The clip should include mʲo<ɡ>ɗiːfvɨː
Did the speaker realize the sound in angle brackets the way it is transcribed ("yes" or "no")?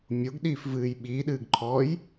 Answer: yes